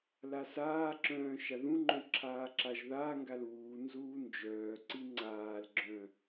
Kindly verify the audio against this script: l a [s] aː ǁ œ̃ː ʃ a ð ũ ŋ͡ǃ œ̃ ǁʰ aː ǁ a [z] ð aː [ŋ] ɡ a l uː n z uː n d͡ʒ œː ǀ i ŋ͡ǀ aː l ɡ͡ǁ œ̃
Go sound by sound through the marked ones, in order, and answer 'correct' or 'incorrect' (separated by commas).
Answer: correct, incorrect, correct